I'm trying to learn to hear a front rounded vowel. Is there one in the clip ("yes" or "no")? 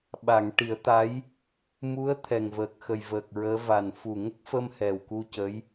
no